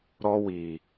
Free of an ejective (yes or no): yes